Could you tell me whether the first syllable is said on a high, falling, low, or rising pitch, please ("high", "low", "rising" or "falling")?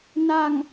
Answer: low